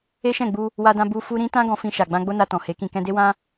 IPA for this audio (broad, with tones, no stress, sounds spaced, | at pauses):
e˦ ʃ ɛ̃˦˨ ɡ͡b u˧ | w a˧ d ã˧ b u˧ f u˧ ɾ ĩ˦ t ã˦ ɡ ɔ̃˧ f ĩ˧ ʃ a˨ ɡ͡b ã˧ ɡ͡b o˦ n a˧ t ɔ̃˨ h e˨˦ k ĩ˧ k ɛ̃˧ d e˦ w ã˦